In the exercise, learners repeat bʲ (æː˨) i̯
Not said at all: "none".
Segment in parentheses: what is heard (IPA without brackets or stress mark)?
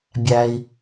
æ˨